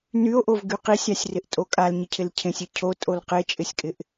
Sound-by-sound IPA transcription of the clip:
n y o̯ ʔ o v ɡ y q i sʲ a sʲ r ɪ ʔ tʼ o kʼ a l ɲ ɪ cʰ ɪ l cʰ ẽ sʲ e cʰ o tʼ o l q e t͡ʃʼ ɪ sʲ kʼ ɪ ʔ

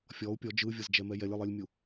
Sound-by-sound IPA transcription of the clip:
fʲ ɔ u̯ pʲ ɔ d͡ʒ ɯ vʲ ɤ z d͡ʒ ɛ m ɛ j ɛ lʲ ɯ lˠ i lʲ mʲ u

